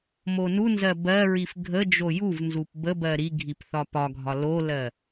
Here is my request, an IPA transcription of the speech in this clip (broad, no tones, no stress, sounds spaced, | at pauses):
m o n u n z ɜ b ɜ ɹ i f ɡʱ ə d͡ʒ o j u v n z u p b ə b ɜ ɾ i ɡʱ i p θ ɒ p ɒ ɡʱ ɒ l o l ɜ